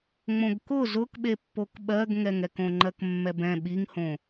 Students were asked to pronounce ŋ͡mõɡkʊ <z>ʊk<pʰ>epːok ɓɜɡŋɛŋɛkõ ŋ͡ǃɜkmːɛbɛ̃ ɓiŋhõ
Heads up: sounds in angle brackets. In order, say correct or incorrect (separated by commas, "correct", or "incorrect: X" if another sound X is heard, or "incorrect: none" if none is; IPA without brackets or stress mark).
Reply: correct, incorrect: ɓ